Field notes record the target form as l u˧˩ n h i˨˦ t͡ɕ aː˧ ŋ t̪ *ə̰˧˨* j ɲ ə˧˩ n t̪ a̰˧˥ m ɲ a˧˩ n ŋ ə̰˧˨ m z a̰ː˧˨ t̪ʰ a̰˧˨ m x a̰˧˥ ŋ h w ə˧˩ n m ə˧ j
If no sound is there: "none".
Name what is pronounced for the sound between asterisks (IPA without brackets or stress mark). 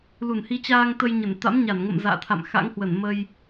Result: ə˧